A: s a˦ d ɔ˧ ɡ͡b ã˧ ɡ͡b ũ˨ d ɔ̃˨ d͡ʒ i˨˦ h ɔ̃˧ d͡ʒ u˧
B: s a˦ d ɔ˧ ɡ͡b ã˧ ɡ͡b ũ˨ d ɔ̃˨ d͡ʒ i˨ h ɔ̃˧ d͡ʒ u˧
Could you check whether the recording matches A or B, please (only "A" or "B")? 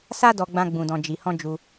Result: B